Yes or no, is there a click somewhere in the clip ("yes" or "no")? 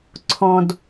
yes